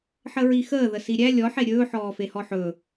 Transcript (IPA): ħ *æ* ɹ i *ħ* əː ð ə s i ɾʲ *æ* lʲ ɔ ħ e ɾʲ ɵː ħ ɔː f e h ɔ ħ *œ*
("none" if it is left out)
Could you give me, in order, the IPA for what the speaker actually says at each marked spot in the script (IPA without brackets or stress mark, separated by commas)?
ə, x, æ, ɵ